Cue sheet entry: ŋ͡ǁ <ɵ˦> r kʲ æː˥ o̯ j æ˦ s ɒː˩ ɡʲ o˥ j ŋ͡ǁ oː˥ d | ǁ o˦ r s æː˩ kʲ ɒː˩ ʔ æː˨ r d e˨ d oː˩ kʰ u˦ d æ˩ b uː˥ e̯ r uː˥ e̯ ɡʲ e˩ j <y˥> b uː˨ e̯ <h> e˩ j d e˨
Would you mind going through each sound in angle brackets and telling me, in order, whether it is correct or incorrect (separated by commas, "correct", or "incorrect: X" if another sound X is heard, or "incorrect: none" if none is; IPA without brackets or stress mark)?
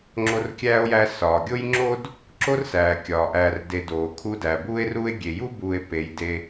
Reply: incorrect: o˦, incorrect: u˥, incorrect: p